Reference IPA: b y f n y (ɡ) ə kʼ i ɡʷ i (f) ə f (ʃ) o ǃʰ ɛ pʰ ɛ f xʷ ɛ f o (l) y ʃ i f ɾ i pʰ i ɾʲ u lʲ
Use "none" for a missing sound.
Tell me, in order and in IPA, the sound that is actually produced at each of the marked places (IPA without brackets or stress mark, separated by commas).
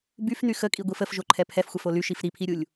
x, f, ʒ, l